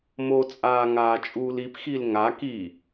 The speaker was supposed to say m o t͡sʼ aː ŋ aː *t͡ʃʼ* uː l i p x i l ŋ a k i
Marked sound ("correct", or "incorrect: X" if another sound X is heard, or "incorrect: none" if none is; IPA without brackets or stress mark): correct